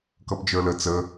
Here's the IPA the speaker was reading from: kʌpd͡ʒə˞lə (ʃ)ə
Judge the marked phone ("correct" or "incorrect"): incorrect